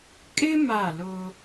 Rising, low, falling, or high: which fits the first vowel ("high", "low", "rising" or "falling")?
high